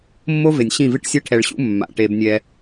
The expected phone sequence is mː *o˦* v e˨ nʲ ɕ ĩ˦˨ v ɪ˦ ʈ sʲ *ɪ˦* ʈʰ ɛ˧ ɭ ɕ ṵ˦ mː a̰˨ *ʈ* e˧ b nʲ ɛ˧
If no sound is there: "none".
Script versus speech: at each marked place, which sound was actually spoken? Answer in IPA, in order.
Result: o˦, ɛ˦, ʈ

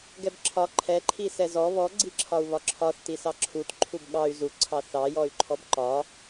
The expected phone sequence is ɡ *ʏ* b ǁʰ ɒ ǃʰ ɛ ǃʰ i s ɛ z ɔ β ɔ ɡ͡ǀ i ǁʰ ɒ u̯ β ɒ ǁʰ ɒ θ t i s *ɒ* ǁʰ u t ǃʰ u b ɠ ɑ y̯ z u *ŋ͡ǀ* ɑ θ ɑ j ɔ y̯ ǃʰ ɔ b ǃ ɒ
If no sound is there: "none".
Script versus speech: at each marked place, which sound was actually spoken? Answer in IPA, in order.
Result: ɛ, ɑ, ǀʰ

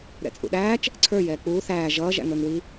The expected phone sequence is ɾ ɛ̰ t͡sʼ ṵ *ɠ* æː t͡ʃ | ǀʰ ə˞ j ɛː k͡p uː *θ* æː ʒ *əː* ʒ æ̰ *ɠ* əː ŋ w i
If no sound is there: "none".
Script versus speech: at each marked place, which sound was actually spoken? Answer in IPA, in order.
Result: ɗ, θ, ʌː, ŋ

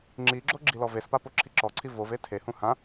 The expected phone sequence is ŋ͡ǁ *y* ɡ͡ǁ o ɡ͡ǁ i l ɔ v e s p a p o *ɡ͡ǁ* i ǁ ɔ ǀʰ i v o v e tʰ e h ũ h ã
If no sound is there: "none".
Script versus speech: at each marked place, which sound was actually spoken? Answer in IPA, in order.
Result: i, ǁʰ

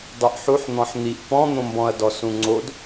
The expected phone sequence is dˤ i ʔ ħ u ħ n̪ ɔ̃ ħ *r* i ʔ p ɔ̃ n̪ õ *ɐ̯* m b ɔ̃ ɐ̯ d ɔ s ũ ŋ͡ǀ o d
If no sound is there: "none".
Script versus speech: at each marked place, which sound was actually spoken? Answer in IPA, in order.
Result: n̪, none

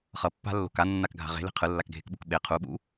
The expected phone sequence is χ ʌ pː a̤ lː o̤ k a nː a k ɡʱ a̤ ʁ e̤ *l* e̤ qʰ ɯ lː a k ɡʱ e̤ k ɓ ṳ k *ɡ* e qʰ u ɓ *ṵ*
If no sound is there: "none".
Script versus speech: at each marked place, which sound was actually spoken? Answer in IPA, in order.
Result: l, ɓ, ṵ

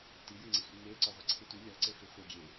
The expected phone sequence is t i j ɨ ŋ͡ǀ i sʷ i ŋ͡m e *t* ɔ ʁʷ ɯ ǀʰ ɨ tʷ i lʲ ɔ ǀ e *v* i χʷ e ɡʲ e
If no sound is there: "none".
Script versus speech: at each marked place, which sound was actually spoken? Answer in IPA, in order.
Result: ǀ, f

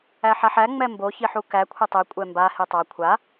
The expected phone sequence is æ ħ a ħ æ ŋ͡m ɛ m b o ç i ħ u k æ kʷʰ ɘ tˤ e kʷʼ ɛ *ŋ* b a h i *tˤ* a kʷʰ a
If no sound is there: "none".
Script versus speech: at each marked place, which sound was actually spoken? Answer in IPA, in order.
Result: m, tˤ

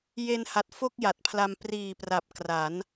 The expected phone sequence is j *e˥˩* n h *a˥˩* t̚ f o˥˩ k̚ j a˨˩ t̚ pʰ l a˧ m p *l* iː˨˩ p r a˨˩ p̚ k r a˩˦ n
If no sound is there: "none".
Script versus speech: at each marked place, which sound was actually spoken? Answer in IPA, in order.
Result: e˧, a˨˩, r

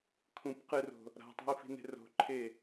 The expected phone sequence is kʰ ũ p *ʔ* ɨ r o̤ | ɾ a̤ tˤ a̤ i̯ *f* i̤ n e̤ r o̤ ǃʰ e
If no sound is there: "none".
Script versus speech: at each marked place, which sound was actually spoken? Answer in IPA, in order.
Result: q, f

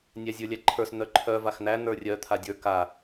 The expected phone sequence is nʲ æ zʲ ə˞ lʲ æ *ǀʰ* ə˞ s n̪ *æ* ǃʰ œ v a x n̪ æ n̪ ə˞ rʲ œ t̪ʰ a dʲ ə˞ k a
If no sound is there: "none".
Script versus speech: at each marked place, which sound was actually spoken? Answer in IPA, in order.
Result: ǃʰ, œ

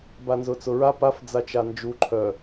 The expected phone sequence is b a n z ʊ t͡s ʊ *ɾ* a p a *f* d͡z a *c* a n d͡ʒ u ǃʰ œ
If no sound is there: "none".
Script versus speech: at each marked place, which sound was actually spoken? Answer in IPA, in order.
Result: ɹ, f, t͡ʃ

